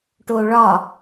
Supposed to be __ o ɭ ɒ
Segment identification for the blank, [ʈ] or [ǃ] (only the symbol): ʈ